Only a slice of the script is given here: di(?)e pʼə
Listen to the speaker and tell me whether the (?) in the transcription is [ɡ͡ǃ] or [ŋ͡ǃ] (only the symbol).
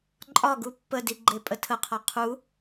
ɡ͡ǃ